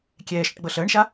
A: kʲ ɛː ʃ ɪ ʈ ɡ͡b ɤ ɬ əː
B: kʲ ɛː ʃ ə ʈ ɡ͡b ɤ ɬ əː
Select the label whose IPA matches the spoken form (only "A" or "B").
B